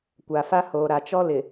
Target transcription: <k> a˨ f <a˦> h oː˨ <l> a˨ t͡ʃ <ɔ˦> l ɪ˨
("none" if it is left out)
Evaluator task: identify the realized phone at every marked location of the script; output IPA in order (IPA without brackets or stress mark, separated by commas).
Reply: kʷ, a˦, ɾ, ɔ˦